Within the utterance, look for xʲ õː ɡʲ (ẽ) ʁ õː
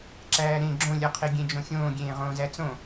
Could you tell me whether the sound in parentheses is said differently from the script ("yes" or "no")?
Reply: yes